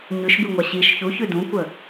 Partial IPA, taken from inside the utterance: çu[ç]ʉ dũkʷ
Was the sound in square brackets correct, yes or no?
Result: yes